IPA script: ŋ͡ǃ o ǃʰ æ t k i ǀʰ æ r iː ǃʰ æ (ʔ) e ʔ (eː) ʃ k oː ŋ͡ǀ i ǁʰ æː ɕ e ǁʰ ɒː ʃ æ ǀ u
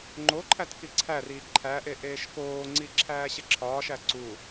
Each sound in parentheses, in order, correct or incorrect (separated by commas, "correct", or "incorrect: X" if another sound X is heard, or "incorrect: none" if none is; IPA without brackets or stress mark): correct, correct